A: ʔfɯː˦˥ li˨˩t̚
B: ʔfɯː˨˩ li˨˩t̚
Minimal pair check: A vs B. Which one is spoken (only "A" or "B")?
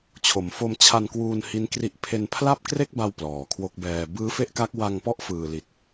B